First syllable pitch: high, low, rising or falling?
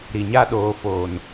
low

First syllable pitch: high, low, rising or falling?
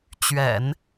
low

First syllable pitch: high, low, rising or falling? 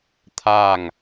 falling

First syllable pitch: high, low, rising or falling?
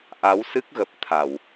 rising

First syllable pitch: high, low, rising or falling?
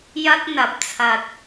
high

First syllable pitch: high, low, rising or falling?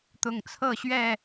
low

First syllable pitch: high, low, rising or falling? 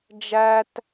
high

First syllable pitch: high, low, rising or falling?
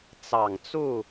low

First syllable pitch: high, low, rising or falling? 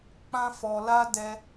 high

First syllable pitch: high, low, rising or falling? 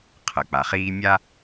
low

